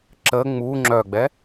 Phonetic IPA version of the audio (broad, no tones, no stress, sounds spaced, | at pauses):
ǁ ə ŋ͡m u ŋ͡ǁ œ ɡ͡b ɛ